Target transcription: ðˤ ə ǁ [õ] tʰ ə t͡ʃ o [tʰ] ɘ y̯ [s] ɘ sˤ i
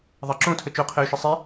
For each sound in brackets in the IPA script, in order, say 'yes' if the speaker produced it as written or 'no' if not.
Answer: yes, no, no

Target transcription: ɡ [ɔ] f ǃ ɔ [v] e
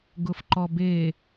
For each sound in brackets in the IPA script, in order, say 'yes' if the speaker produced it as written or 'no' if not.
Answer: no, no

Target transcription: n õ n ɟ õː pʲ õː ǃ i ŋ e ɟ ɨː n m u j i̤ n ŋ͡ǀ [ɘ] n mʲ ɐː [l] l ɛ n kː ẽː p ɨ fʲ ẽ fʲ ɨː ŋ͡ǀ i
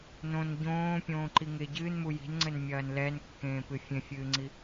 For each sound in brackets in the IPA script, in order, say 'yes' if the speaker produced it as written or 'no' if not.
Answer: yes, no

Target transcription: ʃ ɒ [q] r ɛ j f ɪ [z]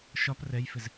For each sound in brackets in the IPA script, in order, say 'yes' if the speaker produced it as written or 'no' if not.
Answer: no, yes

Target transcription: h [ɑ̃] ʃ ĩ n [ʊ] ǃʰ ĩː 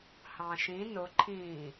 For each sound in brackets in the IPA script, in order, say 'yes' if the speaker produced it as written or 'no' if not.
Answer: yes, yes

